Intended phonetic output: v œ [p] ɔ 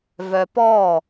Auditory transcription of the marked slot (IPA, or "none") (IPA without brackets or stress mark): p